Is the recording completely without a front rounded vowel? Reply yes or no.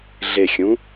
yes